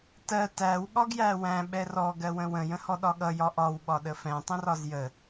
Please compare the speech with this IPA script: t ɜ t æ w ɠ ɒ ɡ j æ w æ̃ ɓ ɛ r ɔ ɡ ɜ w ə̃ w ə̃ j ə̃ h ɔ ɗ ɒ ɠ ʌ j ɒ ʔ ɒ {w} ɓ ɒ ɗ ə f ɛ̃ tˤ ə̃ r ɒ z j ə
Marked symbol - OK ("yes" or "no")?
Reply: yes